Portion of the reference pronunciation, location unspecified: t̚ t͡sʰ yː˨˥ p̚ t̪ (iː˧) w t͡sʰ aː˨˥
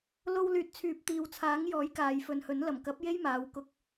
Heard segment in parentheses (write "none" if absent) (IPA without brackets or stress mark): iː˨